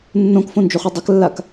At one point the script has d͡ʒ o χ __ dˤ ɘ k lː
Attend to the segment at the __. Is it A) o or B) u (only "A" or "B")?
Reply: B